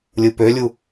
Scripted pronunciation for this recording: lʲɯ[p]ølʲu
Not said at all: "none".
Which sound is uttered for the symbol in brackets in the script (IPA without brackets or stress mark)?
p